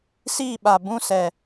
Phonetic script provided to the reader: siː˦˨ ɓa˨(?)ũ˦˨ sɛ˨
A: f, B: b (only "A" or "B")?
B